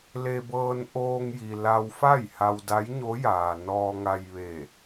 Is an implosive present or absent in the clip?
absent